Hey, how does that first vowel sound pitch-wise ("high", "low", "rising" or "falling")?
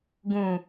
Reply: low